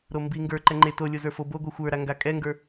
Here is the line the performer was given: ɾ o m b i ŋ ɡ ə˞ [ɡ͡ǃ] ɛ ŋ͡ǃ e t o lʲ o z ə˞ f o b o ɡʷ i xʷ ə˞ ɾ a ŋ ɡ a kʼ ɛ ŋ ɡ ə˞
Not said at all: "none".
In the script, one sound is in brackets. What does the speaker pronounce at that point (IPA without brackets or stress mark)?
ǃ